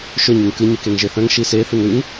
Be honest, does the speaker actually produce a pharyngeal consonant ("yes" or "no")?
no